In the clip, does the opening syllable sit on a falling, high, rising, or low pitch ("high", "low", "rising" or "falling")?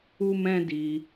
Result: high